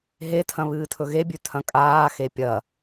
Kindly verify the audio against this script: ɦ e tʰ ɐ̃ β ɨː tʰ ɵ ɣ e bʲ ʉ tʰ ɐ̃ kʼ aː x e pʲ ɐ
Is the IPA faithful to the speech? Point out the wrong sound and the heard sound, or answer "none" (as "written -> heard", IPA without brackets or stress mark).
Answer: none